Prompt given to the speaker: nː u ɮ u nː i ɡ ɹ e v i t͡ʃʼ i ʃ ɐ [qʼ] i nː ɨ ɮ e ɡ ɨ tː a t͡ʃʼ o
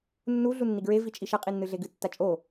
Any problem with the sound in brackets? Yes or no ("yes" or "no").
no